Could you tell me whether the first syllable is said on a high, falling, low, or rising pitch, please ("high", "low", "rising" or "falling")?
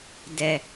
low